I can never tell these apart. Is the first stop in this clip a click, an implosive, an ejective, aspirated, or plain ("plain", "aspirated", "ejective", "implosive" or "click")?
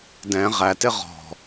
plain